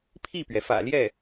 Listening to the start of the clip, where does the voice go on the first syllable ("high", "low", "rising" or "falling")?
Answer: falling